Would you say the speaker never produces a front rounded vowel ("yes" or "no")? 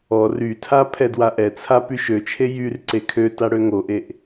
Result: no